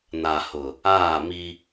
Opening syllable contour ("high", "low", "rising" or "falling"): low